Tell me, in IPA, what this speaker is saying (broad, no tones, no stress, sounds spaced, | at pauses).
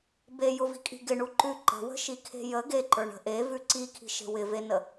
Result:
b e j ʊ v i̤ kʼ i̤ ɡ ɪ ɳ u ǃ ʉ ǃ ə̤ w ə̤ ʃ i kʰ e̤ j ə ɡ e ǃ ə˞ ɳ ə̤ ʔ e v ʉ ǀ i kʰ i̤ ʃ e̤ w ɪ v e n ə